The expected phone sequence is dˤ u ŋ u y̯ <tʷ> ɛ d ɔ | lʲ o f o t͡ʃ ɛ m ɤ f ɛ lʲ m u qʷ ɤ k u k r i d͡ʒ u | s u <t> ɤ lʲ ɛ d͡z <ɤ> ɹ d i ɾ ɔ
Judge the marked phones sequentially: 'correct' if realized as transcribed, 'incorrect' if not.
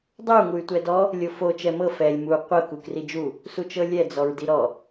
correct, incorrect: t͡ʃ, incorrect: ɔ

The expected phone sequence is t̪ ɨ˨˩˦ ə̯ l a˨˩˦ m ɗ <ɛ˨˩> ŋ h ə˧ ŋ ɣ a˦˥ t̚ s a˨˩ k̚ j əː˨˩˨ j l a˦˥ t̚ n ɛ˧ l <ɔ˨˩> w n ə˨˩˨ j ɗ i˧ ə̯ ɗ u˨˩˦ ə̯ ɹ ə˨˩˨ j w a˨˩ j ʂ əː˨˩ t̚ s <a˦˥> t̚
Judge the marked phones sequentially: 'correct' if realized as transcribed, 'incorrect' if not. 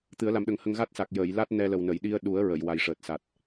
incorrect: ə˨˩, incorrect: ə˨˩, incorrect: a˨˩

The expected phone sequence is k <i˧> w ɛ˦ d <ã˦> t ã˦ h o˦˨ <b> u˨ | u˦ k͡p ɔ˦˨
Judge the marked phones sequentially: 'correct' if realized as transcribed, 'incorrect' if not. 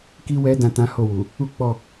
incorrect: i˦, incorrect: ã˧, incorrect: w

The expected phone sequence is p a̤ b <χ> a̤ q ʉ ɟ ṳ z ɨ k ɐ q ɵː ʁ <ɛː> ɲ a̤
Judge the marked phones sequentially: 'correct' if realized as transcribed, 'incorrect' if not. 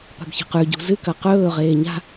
incorrect: ç, incorrect: eː

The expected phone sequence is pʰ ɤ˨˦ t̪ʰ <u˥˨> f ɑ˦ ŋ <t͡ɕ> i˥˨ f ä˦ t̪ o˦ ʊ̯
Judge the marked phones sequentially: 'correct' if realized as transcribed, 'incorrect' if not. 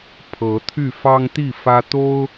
incorrect: y˥˨, incorrect: t̪

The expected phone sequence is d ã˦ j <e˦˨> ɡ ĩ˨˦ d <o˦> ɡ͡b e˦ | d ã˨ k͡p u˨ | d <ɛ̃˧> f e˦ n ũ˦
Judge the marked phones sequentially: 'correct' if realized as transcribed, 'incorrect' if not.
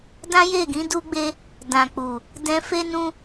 correct, incorrect: u˦, correct

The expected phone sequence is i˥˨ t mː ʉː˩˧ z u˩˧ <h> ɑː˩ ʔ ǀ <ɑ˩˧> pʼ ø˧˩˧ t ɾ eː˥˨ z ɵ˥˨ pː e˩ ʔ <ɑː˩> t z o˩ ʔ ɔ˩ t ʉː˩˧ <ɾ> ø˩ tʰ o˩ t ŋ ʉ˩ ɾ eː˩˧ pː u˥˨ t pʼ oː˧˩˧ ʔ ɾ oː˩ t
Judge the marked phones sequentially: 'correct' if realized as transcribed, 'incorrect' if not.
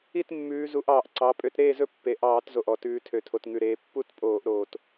incorrect: ʔ, correct, incorrect: ɑː˧˩˧, incorrect: tʰ

